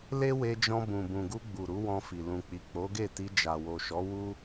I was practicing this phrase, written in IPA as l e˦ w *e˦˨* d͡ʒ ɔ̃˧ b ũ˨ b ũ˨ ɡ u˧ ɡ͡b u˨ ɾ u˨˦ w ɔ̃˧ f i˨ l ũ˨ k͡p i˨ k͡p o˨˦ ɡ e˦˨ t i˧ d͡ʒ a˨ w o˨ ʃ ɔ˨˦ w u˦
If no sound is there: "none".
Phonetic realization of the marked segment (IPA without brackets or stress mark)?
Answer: e˧